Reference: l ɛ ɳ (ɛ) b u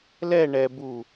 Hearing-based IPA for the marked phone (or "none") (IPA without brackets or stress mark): ɛ